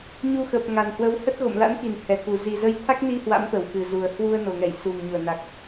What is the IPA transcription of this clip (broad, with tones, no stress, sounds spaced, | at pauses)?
ɲ u˧ x əː˨˩ p̚ ŋ a˨˩ n h w ə˨˦ w h ə˦˥ t̚ ɣ o̰˧˨ m l a̰˧˥ n k i˧˩ n h ɛ˨˩ k u˨˩ z i˨˩ z ə˨˦ j t̪ʰ a˦˥ k̚ n i˧ h w a̰˧˥ m t̪ ə˧˩ w x ɨ˨˩ z u˨˩ ə̯ h w u˧ ə̯ n o˨˩ ŋ ɛ˧˩ j s u˨˩ m ɲ u˧˩ ə̯ n a˨˩ k̚